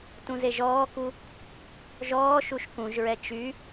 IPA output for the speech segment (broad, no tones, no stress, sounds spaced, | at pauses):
t ũ z e ʒ ɔː k u | ʒ ɔː ʃ u ʃ k ũ ʒ ɹ ɛ t͡ʃ y